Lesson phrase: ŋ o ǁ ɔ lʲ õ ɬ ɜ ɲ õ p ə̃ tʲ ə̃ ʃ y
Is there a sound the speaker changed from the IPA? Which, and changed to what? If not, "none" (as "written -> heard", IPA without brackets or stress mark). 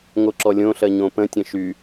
none